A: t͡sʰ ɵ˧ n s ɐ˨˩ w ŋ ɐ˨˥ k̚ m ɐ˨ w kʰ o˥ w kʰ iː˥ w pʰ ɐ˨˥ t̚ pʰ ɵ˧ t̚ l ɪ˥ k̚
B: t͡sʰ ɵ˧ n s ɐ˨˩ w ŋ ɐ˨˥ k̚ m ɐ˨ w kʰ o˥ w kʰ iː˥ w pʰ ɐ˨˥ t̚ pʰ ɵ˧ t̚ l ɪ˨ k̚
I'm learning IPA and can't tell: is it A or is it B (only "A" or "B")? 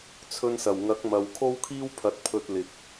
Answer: B